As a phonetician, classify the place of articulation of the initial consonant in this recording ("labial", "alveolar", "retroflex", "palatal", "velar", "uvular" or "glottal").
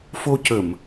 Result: labial